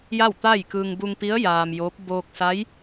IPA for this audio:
j a˥˨ w t̪ a˥˨ j k ɯː˧ ŋ b u˧ ŋ p i˧˥ ə̯ j aː˧ m j oː˧˥ p̚ b oː˧ k̚ s a˧˥ j

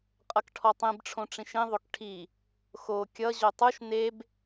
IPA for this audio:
qʼ ʌ k ʈʰ ɔ tˤ ĩ b ʈ͡ʂʰ õ ʈ͡ʂ ĩ ʃ ĩ ðˤ o k ʈʰ i | x o kʲ ʌ ʑ o tˤ u ʃ n e b

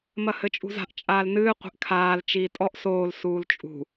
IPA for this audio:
m ɐ h ɘ t͡ʃʼ ṳ z a̤ ʔ t͡ʃʼ aː l n ɨː qʷ e̤ ʔ kʰ aː l t͡ʃ iː tʼ ɔ ʔ s oː l s uː l t͡ʃʼ ṳ

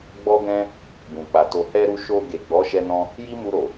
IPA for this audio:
ɡ͡b ɔ˦ ɡ ɛ̃˦ | b ũ˨ k͡p a˨ t o˨ h ɛ˧ ɾ u˧ ʃ o˧ ɡ e˨ ɡ͡b ɔ˨˦ ʃ ɛ˧ n ɔ̃˧ | j i˦ m u˧ ɾ o˨

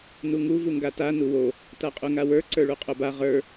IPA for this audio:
n u ŋ u v u ŋ ɡ a t a n u w o | t a qʼ u ŋ a w ə˞ ǀ ə˞ ɭ u qʼ o b a ʁ ə˞

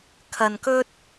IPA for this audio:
kʰ ɐ˧ n k ɵ˥ t̚

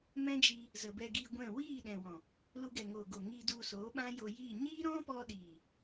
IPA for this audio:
m ɛ̃˦ d͡ʒ i˧ | z ə˨ b ɛ˧ ɡ iː˧ ɡʷ ɛ̃˦˨ w iː˦˨ ɗ ɛ̃˨ w ɔ̃˨ | l u˧ ɡ ɛ˨ ŋ oː˨ ɡ o˨ ŋ i˧ d u˧ s oː˨˦ ɓ ã˦ j o˧ j iː˦˨ ɲ iː˦ ɾ ɔ̃˦ p ɔ˧ ɗ iː˨

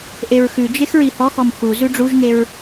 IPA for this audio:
ʔ e ɹ x ʉ d͡ʒ e x ɹ i h ɔ x ɔ m x u z ʉ ɖ͡ʐ u ʒ ŋ e ɹ

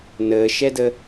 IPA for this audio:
n əː ʃ ɛ d ə

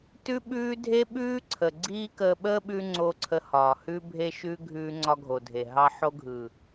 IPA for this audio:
t ʉ˦ ɓ ʉː˦ dʱ e˦ ɓ ʉː˦ ǀʰ ə˨ ɡ͡ǀ iː˦ k əː˧ ɓ əː˦ ɓ ʉ˧ ŋ͡ǀ o˧ ǀʰ ə˧ h ɒː˨ h ʉ˧ bʱ e˧ ʃ ʉ˧ ɡʱ ʉː˧ ŋ͡ǀ ɒ˧ ɡʱ o˨ dʱ e˨ ɦ ɑ˧ ħ o˧ ɡʱ ɯ˨

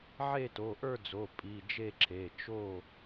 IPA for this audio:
ʕ e˥˨ t o˩˧˩ ʔ ə˞˥˨ d͡z o˩˧˩ pʼ i˩˧˩ d͡ʒ e˥˨ ǁʰ e˩˧˩ t͡ʃ o˥˨

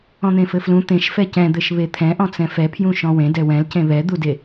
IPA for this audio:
ɔ̃ n̪ ẽ f ɘ f l ũ t̪ ẽ ʃ f ɛ c ɛ̃ d̪ ɘ ʃ β e t̪ʰ ɛ̃ ʔ ɔ̃ t͡s ɛ̃ f ɛ pʰ j ũ ʃ ɔ̃ w ẽ d ɛ w ɛ̃ l c ẽ β ɛ d̪ u d e

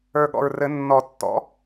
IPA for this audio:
ə˞˨˩ ɠ ɔ̰˨˩ ɹ r ɘ˨˩˦ nː ɔ˨˩˦ tː ɔ̰˩˥

